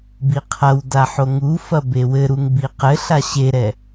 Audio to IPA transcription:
b i qʰ ɐ w d a ħ o ŋ u f ɐ b e w ɘ ɾ u ŋ b i q ɘ ɬ a ɕ e ɾ ɛ

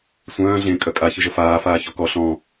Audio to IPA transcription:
sʷ œ̃ː ɮ ẽ kʼ œ kʼ a ç ɨ ʒ ə f aː f aː ç ɔ k ɔ ɬ ɔ̃

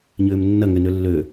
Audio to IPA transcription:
ɲ ʏː m nː ɐ ŋ ʏ n ø lː ø

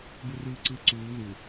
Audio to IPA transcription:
b ɯ r ɯː ǀ ɯː ǀ uː ð u

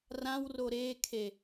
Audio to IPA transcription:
r ã w r o ɾ eː kʰ e

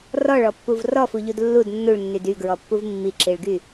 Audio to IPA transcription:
r ɔ ɭ ɔ pː u v r ɔ f u ʎ u d lː u d nː u ɭ nː y d y ɡ ɹ ɔ pː u v mː i ǁ i ɭ ɡ y

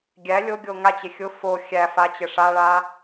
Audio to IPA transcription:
ɡʲ æ lʲ o ɡʲ o ŋ a t͡ɕ e xʲ ʊ f o xʲ æ f a t͡ɕ ɘ ʂ a ɭ a

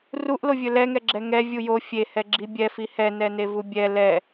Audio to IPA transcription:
r u ʔ l o vʲ ɵ l ɛ ŋ ɛ ɡ͡ǁ ɛ ŋ ɛ vʲ u j o fʲ e h ɛ ɡ͡ǁ i bʲ ɛ f i h ɛ n ɛ n e v u bʲ ɛ l ɛ

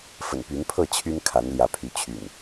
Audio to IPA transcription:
f ə̰˨˩ n p y˨˦ n pʰ ɤ˥˨ t͡ɕʰ y˦ n kʰ a˨˦ n l j ä˨˦ pʰ y˨˦ t͡ɕʰ y̰˨˩ n

